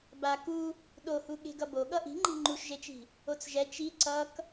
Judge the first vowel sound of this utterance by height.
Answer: low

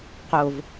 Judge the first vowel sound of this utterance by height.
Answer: mid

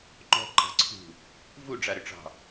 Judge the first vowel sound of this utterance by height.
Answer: mid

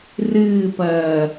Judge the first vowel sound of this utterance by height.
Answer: high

